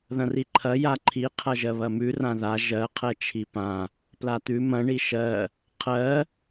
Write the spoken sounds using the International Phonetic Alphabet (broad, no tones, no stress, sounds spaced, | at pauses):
ð ɐ̃ r i ǃʰ ɐ j a ǃʰ i qʰ ɐ ʒ ɜ β ɐ m ʉ r ã ð a ʒ ɜ qʰ ɛ t͡ʃʰ i p ã | p l a t̪ ʉ m ɐ̃ ɳ i ʃ ɜ | qʰ ɜ